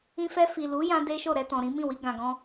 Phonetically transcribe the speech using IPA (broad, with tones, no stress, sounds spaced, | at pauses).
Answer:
ĩ˧ f ɛ˧ f i˨ l u˨˦ j ã˦ d e˦ ʃ o˦˨ ɾ ɛ˧ t ɔ̃˨ ɾ ĩ˨˦ m ĩ˦˨ w i˧ ɡ ã˨ ɡ ɔ̃˧